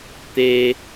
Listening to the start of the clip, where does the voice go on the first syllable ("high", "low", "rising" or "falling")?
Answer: high